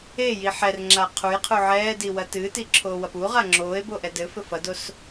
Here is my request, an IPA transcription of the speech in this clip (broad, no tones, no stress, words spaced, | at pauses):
eji ħɛrŋ͡ǁa qʰujqʰu ʕɛːdiwɐ tɨːtiǁʰoːwɐp uʁa ŋ͡ǁoːe̯boʔɛ dɘfɘ fɐdos